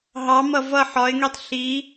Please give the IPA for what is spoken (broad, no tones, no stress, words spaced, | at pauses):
ɦɑ mʌvʌ ħɒɪ̯ŋitˤ ɬi